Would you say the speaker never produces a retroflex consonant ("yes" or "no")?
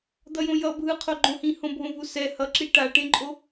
no